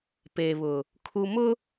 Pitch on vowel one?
low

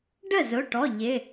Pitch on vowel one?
falling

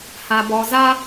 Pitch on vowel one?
high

